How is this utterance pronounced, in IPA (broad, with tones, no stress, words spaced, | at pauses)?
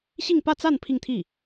ɕi˥˧ŋpä˥˧t͡sa˥˧n pʰi˥˧ŋt̪ʰi˥˩